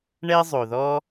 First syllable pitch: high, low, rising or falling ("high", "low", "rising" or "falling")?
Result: high